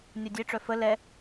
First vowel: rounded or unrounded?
rounded